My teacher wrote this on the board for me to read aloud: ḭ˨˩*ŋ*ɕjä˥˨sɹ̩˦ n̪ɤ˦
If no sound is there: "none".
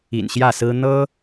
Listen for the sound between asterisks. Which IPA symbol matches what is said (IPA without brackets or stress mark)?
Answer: n